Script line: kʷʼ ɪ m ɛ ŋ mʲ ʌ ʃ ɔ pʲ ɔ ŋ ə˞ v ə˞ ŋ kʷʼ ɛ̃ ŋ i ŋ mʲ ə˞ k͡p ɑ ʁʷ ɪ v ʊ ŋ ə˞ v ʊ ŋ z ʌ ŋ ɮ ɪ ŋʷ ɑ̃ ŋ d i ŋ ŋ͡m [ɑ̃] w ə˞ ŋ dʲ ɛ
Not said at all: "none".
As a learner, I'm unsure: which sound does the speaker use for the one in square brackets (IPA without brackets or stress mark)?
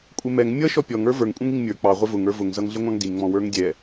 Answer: ɔ̃